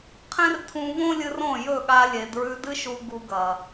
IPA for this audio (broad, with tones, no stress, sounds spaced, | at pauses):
qʰ ẽ˦ r tʰ ũ˧ v õ˦ lʲ ɨ˧ r õ˦˨ j ɵ˦˨ ɠ a˧ lʲ e˨ d ɹ ʉ˧ d ɨ˦ ʃ u˧ ɡ u˧ ɡ ɐ˨